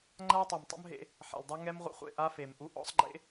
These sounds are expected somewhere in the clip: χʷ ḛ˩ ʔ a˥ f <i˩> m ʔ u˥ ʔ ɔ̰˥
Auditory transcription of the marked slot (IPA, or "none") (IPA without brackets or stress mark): e˩